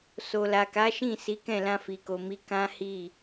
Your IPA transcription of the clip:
s o˨ l a˨ k a˨˦ ʃ ĩ˦˨ s i˨˦ k ɛ̃˦˨ l ã˧ f i˨ k o˨ m i˨˦ k ã˦ h i˦˨

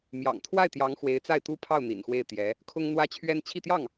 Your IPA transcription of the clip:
m j ɑ̰˨˩ ŋ t̪ʰ w a˥˩ ɪ̯ t̪ j ɑ˧˥ ŋ x w e˧˥ ɪ̯ t͡s a˥˩ ɪ̯ t̪ u˥ pʰ ɑ˥˩ ʊ̯ n̪ ḭ˨˩ n x w e˥˩ ɪ̯ t̪ j ɛ˧˥ | kʰ ʊ˥ ŋ n̪ w ä˥ t͡ɕʰ ɥ ɛ˥ n t͡ɕʰ i˥˧ t̪ j ɑ˥˩ ŋ

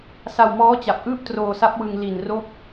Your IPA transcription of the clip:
s a˧ w m ɔː˦˥ t͡ɕ a˨˩ p̚ ʔ ɯː˥˩ p̚ t r oː˧ s a˦˥ p̚ w ɯ˧ ŋ l i˨˩ n r o˦˥ k̚

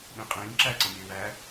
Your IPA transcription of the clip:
ɗ ĩ qʼ ĩː ǁ æ ǀ ə̃ mʲ ə˞ w æ

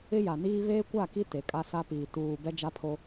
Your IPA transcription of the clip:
ɪ˦ j a˨ n iː˦ β eː˦ kʷ a˦˨ k i˦ t e˨ kʼ a˦ s a˦ p iː˨ t uː˨ b ɛ˦ d͡ʒ a˦ pʰ o˦

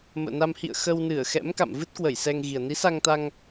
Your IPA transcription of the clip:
m ə̰ː˧˨ n a˧ m h ḭ˧˨ ə̯ x ə˧ w n ɨ˧˩ ə̯ x ɛ̰˧˥ m k a̰˧˨ m v ɨ˦˥ t̚ k w ə˧˩ j s ɛ˧ ŋ ɣ i˨˩ ə̯ n i˨˦ s a˧ ŋ t̪ a˧ ŋ

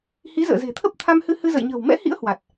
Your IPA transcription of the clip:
h i˨˦ z ə̰ː˧˨ z e̤˨˩ t̪ʰ ə˦˥ p̚ t̪ʰ a˧ m h ɨ˧ h ɨ˧ z ə̰˧˨ j ɲ ə̤ː˨˩ w m ɛ̰˧˥ h ḭ˧˥ ə̯ h w a˨˩ t̚

